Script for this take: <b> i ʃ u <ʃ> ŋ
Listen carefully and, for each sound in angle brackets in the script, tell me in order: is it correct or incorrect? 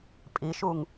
incorrect, incorrect

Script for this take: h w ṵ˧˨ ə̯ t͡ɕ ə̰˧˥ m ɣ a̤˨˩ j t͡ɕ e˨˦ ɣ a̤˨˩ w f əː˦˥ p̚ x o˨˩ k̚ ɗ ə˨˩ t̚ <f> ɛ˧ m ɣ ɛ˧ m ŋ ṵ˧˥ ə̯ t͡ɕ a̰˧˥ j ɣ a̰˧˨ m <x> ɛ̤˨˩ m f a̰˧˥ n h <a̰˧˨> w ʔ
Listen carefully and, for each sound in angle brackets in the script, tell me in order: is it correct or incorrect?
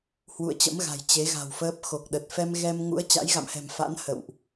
correct, incorrect, incorrect

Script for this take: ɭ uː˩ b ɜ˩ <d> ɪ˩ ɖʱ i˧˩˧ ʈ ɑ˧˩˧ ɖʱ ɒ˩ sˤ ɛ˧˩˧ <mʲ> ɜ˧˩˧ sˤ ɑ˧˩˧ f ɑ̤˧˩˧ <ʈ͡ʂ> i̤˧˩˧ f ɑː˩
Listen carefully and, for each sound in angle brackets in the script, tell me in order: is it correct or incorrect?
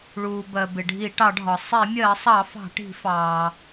incorrect, correct, incorrect

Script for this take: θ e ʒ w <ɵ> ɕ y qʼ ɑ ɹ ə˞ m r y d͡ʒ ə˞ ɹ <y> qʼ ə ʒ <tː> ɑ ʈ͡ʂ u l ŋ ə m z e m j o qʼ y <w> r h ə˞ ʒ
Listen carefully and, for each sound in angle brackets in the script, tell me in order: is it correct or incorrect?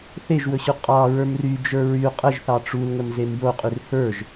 correct, correct, incorrect, incorrect

